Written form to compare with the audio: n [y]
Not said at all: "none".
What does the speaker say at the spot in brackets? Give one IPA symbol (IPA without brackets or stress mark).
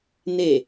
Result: e